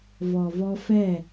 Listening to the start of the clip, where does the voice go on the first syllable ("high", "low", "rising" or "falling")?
low